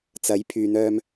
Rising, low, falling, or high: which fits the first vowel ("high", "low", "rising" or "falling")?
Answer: rising